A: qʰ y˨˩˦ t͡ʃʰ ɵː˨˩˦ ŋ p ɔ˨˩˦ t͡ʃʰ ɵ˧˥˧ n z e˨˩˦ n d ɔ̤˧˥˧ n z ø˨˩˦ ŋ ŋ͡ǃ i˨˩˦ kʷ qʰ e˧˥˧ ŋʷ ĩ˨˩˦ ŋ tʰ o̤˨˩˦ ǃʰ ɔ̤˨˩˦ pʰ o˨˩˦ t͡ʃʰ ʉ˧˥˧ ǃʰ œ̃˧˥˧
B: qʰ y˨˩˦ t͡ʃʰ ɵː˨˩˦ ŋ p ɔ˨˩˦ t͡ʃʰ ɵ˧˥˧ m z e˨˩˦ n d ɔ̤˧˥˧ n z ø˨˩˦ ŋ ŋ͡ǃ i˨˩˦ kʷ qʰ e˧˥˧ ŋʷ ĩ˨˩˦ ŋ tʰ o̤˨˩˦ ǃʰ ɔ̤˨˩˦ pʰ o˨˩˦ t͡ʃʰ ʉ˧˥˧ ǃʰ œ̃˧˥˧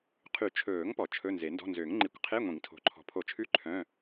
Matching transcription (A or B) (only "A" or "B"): A